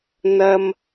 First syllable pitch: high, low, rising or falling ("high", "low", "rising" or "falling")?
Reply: high